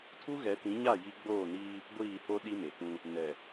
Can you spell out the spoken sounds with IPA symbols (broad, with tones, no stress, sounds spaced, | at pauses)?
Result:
tʰ u˦ ɣ ɛ˨˦ t ĩ˨˦ ɲ a˦˨ j i˦ ɡ͡b oː˦˨ n iː˦ | ɡʷ iː˦˨ h o˦ ɗ i˦ m e˨ k ũ˦ | n ɛ˨